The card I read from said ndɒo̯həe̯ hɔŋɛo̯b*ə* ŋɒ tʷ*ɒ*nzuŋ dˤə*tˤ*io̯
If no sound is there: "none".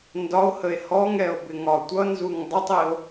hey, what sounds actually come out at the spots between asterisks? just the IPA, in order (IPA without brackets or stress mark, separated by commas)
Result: ɪ, ʌ, tˤ